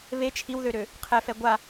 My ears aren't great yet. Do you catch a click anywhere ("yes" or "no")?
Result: no